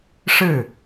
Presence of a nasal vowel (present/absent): absent